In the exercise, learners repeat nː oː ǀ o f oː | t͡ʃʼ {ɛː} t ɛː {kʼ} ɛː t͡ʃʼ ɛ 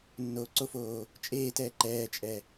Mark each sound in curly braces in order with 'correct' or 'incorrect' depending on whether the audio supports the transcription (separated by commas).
incorrect, incorrect